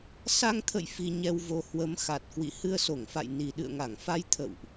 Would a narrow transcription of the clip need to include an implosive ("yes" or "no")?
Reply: yes